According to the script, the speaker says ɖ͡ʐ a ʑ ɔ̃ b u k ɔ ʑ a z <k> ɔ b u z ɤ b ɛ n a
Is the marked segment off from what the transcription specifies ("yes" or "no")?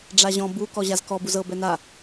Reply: no